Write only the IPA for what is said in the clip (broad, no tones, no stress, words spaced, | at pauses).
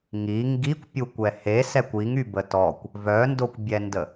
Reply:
ŋi ŋɡikʷpʲukʷɛ hesɛkʷ iŋybə tɔkʷ | vœndokʷbʲɛndə